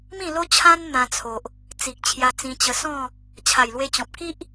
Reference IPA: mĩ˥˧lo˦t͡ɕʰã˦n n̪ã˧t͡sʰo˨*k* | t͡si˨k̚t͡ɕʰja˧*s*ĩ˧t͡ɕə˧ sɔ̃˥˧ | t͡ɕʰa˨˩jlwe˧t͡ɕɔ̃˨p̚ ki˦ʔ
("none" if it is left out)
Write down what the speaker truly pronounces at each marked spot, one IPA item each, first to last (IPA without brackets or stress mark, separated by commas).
ʔ, t͡s